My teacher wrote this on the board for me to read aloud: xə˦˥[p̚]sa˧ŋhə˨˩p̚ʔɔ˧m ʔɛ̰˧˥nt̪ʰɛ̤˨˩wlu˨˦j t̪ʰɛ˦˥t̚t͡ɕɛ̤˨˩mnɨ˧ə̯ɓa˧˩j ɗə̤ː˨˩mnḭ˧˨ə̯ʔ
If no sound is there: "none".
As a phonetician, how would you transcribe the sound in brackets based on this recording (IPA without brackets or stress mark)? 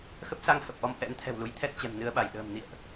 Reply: p̚